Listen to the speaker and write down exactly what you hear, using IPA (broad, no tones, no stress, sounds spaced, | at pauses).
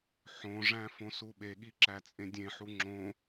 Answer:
ħ õ ʐ æ̃ f õ s u ɓ e ɠ i ǁ æ t͡sʼ ẽ dʲ ẽ ħ u ŋ͡ǁ õ